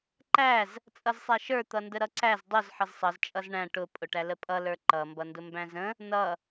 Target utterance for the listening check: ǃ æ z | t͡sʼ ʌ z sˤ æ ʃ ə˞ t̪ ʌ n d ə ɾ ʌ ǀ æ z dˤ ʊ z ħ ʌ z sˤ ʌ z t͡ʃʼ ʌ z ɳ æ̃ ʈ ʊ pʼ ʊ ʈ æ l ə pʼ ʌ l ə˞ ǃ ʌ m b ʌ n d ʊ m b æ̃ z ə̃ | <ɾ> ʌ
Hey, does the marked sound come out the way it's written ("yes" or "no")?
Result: no